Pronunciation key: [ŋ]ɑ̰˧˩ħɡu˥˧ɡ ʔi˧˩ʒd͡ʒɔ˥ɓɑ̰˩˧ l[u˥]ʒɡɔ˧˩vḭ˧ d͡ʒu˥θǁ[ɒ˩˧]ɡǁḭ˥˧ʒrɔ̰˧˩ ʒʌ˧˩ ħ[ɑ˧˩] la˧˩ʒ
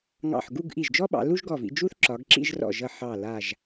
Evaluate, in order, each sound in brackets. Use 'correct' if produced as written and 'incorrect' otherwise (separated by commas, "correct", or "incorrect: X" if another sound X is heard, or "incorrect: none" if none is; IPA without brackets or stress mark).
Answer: correct, correct, correct, correct